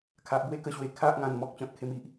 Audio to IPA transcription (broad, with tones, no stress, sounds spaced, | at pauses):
kʰ a˨ ʔ b w e˥˧ k ə˧ ɕ w e˨˩ kʰ a˦ ʔ ŋ ã˨˩ n m ɔ˦ k̚ t͡ɕ ɔ̃˨ t̚ kʰ e˧ m i˨ ʔ